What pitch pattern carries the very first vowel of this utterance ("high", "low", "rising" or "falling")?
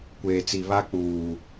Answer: low